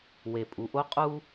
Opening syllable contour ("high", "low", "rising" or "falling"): low